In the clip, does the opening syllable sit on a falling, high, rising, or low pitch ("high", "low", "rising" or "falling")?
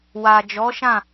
low